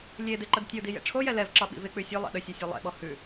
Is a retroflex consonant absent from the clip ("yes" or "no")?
no